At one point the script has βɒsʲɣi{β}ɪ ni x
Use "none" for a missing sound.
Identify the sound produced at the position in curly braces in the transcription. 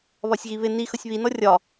β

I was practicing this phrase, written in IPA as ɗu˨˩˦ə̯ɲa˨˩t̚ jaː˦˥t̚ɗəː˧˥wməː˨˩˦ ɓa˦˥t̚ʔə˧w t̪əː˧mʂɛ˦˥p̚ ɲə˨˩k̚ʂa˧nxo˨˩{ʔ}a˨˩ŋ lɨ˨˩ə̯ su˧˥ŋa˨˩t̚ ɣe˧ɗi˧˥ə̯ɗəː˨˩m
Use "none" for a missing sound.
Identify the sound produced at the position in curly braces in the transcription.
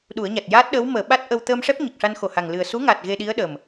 h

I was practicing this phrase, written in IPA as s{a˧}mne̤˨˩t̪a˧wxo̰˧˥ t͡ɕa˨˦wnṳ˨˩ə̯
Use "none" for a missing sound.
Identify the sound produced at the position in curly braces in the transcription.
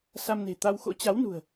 a˧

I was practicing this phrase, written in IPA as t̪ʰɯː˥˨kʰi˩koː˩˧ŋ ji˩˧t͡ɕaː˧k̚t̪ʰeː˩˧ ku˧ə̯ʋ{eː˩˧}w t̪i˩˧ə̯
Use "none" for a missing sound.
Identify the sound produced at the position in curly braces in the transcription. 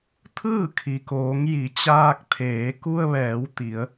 ɛː˩˧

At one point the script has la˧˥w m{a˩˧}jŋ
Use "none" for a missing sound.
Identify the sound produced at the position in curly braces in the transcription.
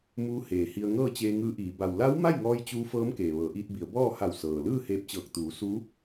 a˥˨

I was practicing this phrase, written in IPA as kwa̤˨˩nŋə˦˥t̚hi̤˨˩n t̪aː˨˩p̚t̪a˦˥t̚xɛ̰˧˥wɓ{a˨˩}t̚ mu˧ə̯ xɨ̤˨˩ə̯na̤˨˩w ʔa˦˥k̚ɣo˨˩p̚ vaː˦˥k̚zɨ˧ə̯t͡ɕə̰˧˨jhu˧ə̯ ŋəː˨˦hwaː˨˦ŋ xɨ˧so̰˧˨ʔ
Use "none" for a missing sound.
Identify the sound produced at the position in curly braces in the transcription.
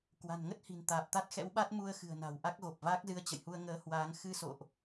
a˦˥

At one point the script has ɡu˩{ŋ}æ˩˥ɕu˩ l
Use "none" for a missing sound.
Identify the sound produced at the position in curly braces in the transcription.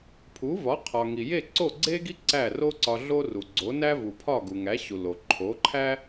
ŋ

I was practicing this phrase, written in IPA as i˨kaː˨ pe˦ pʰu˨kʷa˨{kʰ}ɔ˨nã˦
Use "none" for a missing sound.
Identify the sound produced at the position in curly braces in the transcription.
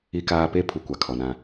kʰ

